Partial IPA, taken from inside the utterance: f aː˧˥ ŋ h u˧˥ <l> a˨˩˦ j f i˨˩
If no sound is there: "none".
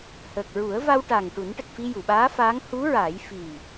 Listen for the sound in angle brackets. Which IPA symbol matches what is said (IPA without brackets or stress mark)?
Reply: ɹ